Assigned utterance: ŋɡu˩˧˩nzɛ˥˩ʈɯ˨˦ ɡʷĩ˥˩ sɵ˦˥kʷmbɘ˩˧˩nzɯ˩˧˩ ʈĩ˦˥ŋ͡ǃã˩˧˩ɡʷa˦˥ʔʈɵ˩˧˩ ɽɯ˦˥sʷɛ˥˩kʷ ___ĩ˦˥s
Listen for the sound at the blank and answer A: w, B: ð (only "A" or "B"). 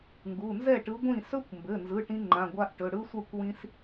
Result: A